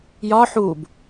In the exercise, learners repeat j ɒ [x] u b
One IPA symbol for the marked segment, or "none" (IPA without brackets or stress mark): ħ